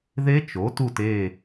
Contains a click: no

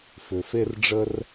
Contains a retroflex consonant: yes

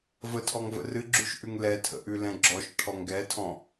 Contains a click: yes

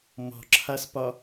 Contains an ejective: no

